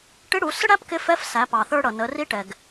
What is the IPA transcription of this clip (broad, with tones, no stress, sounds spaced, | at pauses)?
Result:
ʈ ɪ˧˥ ɽ u˩˧ s ə˥ ɽ æ˥ p k ɪ˧˥ f ɛ˧˥ f s æ˩˧ p ɑ˩ θ ə˞˧ ɽ ʌ˩ n ə˩˧ r i˧˥ ʈ ɛ˩ ɡ